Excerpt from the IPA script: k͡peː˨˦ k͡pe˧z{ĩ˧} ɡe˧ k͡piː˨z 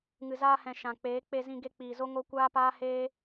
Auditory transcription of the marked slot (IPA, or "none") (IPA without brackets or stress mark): ĩ˧